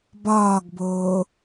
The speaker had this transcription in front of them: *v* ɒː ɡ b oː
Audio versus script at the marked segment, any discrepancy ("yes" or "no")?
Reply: yes